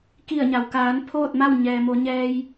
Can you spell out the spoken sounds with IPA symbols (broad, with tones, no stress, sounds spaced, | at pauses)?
k i˧˩ ə̯ ɲ a˩ w k aː˩˧ n pʰ oː˥˨ t̚ m a˥˨ w ɲ ɛː˩ m o˩˧ ɲ ɛː˧ j